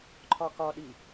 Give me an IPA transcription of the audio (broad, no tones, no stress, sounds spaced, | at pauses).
ǃʰ ɒ k ɒ ɗ i